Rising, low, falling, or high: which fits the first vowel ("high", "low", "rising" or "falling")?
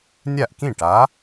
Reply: falling